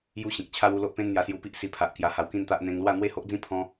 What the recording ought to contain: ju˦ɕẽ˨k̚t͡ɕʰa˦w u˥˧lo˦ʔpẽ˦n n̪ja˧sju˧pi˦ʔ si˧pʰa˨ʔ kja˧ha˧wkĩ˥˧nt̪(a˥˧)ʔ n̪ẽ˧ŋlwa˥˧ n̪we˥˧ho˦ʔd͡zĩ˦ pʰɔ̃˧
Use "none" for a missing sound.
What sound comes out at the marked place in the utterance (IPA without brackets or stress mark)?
a˦